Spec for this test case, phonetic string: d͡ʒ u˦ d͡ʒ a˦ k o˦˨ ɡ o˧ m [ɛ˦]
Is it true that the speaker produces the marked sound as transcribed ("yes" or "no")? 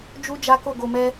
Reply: yes